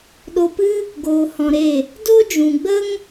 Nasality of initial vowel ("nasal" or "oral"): oral